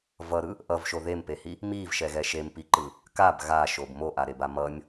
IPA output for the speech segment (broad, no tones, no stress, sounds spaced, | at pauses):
v ʌ ɾ ɯ | ʔ ʌ v ʃ o ð e m p e h i | m i v ʃ ɛ ɣ ɛ ʃ e m p i ǃ ɯ | k a b ɣ a ʃ o b m o ʔ a ɾ e b a m ʌ nʲ